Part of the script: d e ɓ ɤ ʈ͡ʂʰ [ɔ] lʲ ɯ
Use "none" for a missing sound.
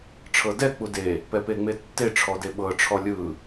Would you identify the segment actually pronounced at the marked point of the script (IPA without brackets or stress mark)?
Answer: ɔ